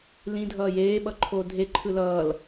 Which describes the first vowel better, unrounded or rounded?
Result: unrounded